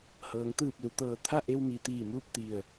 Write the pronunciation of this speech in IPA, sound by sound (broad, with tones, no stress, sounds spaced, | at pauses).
h ɤː˩˧ ŋ t̪ ɯː˧˩ p̚ l u˩ t̪ ɤː˧˩ t̪ʰ a˥˨ ʔ e˧ w m i˩˧ t̪ iː˧˩ m uː˥˨ p̚ t̪ i˧˩ ə̯